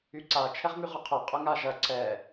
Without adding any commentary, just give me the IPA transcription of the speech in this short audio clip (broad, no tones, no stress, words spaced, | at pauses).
yǀa t͡ʃʰɛʁmyʁʊqʰʊ qʼʊŋaʒɐ ǀɛ